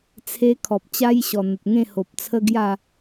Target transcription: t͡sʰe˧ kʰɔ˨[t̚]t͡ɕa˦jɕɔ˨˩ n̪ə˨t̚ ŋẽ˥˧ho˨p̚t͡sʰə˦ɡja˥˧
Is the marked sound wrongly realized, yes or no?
yes